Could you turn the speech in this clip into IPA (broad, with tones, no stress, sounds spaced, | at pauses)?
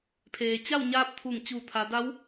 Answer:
pʰ eː˩ t͡ɕ a˥˨ w ɲ aː˧˥ p̚ t̪ʰ u˧˩ ŋ t͡ɕ uː˧˩ t̪ʰ a˩˧ d a˧˥ w